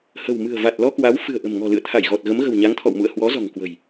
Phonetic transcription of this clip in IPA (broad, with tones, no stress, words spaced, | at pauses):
hə̤˨˩w mɨ̤˨˩ə̯va˨˩t̚lɔ˧kwa˨˦w fɨ̤˨˩ə̯ʔə̤˨˩mŋɔ̤˨˩ lɨ̰˧˨ə̯t̪ʰa˧˩jɣɔ˨˩t̚ ɣə˨˦mɣə̤˨˩wɲa˨˦ŋ t̪ʰɔ̰˧˨wmṵ˧˨ə̯ hwɔ˨˦zɔ̤˨˩ŋkwə̤˨˩j